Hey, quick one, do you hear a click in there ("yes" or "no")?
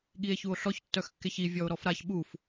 no